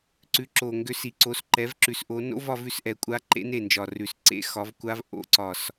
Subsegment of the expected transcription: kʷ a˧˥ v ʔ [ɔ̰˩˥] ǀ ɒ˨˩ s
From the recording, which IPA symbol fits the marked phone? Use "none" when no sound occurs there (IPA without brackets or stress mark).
o̰˩˥